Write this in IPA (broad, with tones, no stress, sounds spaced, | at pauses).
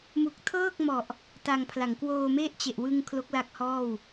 m u˨˩ k̚ tʰ ɤː˥˩ k̚ m ɔ˨˩ ʔ | t a˧ ŋ pʰ l a˩˦ ŋ k w oː˧ m e˥˩ ʔ t͡ɕ e˨˩ ʔ w ɯ˧ ŋ kʰ l o˦˥ k̚ l a˦˥ k̚ h ɔː˥˩ w